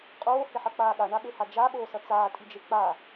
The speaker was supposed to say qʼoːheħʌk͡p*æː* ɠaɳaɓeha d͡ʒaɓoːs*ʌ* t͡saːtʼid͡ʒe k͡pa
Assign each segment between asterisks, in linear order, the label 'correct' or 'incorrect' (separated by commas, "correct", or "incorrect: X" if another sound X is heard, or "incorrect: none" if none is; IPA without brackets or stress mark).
incorrect: aː, correct